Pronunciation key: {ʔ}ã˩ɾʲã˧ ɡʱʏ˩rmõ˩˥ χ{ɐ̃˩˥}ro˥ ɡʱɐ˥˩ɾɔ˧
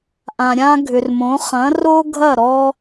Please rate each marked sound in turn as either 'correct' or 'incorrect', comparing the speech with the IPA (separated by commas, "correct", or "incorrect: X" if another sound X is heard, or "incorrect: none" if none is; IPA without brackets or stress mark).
correct, correct